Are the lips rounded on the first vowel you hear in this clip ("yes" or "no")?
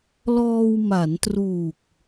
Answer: yes